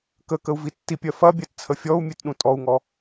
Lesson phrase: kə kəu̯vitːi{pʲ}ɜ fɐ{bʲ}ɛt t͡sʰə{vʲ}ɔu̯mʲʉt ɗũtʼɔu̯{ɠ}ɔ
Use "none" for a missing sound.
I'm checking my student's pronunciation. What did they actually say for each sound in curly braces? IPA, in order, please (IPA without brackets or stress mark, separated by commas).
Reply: pʲ, bʲ, fʲ, ŋ